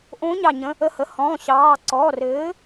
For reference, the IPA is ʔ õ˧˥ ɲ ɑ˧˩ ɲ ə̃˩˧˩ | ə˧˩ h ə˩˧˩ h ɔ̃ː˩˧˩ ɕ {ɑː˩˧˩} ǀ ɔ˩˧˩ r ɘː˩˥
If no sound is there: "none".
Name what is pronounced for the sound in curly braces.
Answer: ɑː˩˧˩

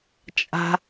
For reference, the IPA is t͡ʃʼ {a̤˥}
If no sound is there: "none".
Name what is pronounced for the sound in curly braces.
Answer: a̤˥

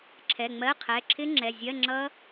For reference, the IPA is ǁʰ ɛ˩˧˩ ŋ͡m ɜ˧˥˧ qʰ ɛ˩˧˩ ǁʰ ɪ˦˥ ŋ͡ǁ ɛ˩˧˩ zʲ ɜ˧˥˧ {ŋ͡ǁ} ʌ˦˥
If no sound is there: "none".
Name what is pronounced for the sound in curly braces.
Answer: ŋ͡ǁ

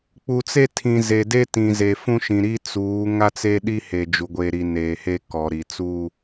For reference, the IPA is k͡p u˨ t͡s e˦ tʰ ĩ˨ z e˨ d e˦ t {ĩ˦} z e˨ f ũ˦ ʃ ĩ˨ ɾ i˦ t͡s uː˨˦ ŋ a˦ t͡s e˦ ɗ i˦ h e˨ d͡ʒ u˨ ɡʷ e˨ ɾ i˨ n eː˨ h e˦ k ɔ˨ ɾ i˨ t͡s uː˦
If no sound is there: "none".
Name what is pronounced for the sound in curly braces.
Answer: ĩ˨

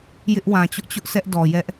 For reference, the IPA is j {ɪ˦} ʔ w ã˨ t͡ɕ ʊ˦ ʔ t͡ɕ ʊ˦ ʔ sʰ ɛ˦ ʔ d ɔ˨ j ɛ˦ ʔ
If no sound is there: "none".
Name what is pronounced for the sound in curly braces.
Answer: ɪ˦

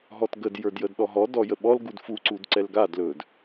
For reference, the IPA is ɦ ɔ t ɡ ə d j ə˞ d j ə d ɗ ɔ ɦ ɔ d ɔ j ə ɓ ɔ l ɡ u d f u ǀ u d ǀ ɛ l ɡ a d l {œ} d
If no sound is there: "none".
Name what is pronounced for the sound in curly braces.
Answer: ɵ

